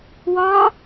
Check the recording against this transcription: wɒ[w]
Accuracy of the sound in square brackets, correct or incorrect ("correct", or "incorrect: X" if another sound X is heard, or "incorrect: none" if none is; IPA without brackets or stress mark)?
incorrect: none